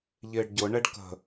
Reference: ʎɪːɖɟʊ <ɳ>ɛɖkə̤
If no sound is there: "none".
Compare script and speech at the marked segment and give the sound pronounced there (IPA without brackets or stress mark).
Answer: ɳ